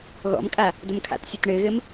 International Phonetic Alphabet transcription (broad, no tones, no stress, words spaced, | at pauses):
ɣɔ̰mkʼa | domkʰa̰tsʲɵt ɳɘːɣɘm